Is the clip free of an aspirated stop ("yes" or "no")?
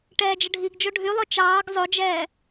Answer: yes